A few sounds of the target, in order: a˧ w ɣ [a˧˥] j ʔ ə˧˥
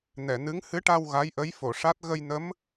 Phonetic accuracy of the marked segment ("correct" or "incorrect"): correct